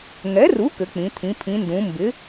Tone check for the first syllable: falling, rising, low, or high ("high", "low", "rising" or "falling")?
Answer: rising